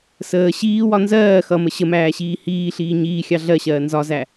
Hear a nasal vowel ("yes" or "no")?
no